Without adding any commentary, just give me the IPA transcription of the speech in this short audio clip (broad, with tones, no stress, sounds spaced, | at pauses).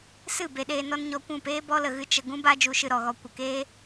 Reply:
s ɨ˦˨ b e˧ ɗ eː˧ n ɔ˦ n ɲ ɔ˧ kʷ ũ˦˨ p eː˦ b ɔ˦ l ə˨ ɣ ɨ˦ t͡ʃ ə˧ ɡ ũ˦ b a˦ d͡ʒ u˧ ʃ ɨ˧ ɾ ɔ˨ ɣ ɔ˧ kʷ ə˨ k eː˦